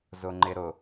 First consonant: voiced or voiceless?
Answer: voiced